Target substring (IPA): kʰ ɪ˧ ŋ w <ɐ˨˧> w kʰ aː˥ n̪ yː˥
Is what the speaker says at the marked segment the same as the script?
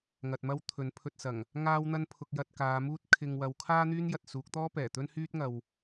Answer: yes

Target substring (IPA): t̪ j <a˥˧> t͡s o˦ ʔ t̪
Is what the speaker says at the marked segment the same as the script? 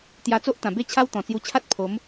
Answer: no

